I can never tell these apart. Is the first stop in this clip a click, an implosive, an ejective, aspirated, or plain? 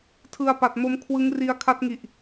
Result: aspirated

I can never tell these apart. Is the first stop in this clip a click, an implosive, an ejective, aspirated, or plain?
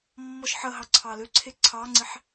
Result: click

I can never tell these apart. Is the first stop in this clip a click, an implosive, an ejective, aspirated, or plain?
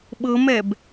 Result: implosive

